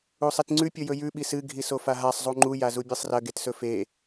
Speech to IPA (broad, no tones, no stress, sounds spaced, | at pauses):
u sˤ i t ŋ͡ǀ ʉ pʲ ɵ j ɵ j ʉ ɓ i s ɨ ɡʱ i s o f a ɦ a sˤ zˤ u ŋ͡ǃ u j a z u bʲ ɨ sˤ r ɐ ɡ e t s ɵ f e